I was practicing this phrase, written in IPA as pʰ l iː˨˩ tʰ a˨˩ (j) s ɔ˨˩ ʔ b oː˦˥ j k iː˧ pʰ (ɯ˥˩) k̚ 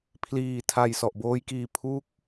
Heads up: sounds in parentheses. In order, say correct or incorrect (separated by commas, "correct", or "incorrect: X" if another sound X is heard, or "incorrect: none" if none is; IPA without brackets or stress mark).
correct, incorrect: u˥˩